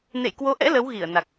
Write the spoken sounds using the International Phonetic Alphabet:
n ḛ˧˨ j k w o˨˦ ʔ ɛ̰˧˥ l ə˨˦ w ɣ i˧˩ ə̯ n a˨˩ k̚

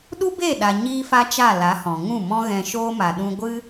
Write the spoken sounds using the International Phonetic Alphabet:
ɗ u˦ b e˦˨ ɗ a˨ ɲ iː˦ f a˦ t͡ʃ a˦˨ l a˨˦ h ɔ̃˨ ŋ ũ˦˨ m ɔ̃˦ ɣ ɛ̃˧ ʃ oː˦ m a˨ ɗ ũ˧ ɡʷ ɨ˦

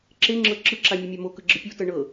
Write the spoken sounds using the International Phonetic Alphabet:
ǁ e ŋ͡ǁ ɤ ǁ ɯ ǁ a mʲ e mʲ a m o k ɯ ɡ͡ǁ ɯ pʲ u t ɤ ɳ ɤ

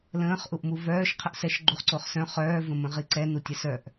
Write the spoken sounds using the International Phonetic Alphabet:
l ə̃ː χ ʔ u ʔ m u v œː ʃ qʰ ə ʔ s ɛ ʃ ɡ͡ǃ u χ ǀ o χ s œ̃ χ œː v ə̃ m ə̃ ʁ i ǀ ɛ n u tʲ ɛ s œ ʔ

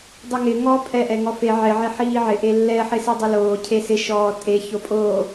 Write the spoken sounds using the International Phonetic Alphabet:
dˤ u ŋ ɪ ŋ ɔ pʼ ɛ ʔ ɛ ŋ ɔ f e ʕ ɪ ʕ e ħ iː ʕ ɪ ʔ e lː ɛ ħ ɪ s i dˤ a l oː cʰ e s ɪ ʃ ɔː tʼ e ç o pʼ oː

